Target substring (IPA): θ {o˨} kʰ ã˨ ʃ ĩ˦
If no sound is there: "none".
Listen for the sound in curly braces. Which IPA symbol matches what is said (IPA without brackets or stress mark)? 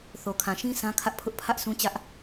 o˨